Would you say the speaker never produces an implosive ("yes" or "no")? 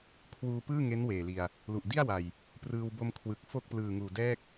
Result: yes